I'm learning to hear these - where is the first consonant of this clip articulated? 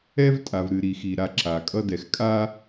lips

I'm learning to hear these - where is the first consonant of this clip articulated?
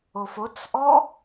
lips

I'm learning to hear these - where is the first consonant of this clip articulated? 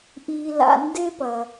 throat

